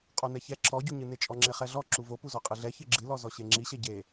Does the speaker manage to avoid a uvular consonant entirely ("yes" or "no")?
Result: no